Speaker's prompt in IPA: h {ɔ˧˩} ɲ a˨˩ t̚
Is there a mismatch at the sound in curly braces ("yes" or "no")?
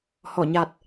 no